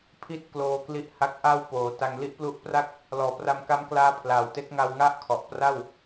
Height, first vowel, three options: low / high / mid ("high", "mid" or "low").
high